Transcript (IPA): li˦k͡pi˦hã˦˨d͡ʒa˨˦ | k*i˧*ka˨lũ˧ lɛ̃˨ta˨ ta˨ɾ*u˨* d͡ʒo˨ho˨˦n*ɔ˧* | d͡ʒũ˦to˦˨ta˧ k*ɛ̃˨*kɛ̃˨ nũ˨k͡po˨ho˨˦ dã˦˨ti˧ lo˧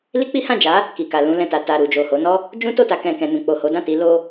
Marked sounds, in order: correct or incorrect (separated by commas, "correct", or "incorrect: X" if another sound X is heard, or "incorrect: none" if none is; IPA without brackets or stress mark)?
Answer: incorrect: i˨, correct, incorrect: ɔ˦, correct